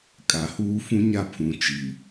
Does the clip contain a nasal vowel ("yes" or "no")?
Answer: yes